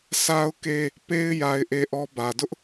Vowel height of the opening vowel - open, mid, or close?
open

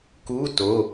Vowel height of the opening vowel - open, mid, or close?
close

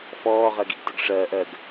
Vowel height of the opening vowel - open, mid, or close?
mid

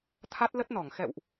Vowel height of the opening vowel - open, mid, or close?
open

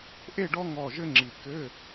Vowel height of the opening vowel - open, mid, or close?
mid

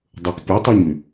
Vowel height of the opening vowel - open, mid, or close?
mid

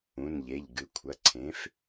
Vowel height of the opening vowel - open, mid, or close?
close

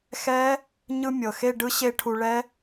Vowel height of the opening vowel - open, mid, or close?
mid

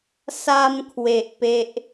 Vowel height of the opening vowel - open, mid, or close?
open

